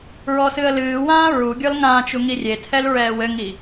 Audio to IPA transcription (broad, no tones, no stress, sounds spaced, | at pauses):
ɹ ɔ s ɨ ə̯ l ɨː w ãː ɹ u ɡʲ ɔ l ŋ ãː t͡ʃ u ŋ i rʲ e tʰ ɛ l ɹ ɛː w ɘ ŋ i